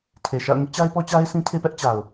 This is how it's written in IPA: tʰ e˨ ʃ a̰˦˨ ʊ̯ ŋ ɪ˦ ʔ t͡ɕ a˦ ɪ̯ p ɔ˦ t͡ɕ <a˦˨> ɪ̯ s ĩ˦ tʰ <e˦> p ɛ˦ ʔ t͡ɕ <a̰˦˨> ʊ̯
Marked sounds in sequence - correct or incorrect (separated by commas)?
incorrect, correct, incorrect